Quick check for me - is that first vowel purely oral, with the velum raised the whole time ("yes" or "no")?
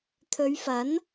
yes